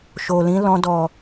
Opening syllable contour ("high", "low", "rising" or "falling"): low